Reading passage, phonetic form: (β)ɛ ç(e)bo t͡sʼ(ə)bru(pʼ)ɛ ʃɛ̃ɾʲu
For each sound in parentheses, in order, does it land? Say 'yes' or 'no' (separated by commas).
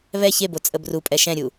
yes, yes, yes, yes